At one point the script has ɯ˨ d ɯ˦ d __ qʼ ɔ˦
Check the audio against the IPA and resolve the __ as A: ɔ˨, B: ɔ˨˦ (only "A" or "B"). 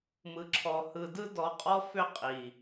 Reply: B